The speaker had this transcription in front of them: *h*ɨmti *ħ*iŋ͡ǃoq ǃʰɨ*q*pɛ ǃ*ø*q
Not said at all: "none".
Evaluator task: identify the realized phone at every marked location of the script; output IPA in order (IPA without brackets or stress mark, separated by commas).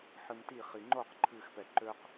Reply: ħ, χ, x, ø